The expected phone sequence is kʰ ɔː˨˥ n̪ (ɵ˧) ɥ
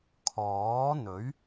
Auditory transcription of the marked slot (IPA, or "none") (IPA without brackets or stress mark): ɵ˨˥